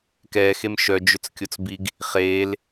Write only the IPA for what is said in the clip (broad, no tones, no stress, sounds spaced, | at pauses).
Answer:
k ɛ x e m ʃ œ d͡ʒ ʏ t͡s kʲ o t͡s b i ɡ | χ e l